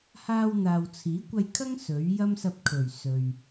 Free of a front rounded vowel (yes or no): yes